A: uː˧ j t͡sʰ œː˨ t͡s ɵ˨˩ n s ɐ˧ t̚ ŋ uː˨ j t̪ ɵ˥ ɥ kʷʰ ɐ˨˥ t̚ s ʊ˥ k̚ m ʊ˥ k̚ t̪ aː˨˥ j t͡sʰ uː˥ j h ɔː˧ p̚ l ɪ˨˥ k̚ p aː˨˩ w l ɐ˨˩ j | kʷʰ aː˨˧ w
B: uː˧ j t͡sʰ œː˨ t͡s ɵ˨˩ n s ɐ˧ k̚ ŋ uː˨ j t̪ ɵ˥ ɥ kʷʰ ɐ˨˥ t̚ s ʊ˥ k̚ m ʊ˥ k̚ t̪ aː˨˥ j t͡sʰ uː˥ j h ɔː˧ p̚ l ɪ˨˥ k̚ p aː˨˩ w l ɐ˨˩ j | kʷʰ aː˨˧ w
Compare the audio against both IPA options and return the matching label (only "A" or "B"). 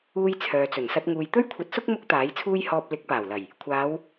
A